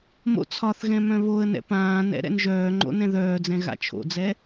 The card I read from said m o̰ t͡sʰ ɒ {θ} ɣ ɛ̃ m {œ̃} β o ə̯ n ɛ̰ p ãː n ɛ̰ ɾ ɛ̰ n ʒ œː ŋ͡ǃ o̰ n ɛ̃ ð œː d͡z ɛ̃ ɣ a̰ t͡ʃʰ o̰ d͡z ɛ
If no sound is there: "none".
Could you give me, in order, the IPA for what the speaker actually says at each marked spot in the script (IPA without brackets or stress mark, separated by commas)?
θ, œ̃